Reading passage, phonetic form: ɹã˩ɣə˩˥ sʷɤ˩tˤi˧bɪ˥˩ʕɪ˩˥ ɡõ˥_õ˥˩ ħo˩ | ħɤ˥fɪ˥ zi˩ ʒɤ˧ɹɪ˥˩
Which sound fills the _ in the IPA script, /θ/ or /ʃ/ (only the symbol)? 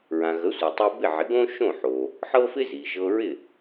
ʃ